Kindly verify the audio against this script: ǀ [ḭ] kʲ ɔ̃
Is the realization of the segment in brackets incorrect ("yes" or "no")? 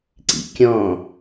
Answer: no